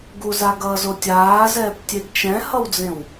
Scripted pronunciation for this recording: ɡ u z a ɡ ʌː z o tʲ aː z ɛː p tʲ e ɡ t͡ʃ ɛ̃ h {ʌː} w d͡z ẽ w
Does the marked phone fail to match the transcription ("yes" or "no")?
yes